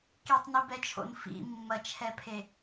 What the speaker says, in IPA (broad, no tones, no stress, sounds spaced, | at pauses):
k i tˤ n i b ɛ t͡ʃʰ o̰ n f ḭ mː ɐ t͡ʃʰ ɛ pʰ e